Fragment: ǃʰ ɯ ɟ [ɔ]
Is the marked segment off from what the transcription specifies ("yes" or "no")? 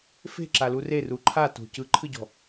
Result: yes